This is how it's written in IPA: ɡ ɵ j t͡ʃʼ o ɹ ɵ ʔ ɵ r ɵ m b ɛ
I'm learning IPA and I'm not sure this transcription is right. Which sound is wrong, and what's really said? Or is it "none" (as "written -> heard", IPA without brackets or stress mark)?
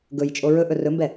none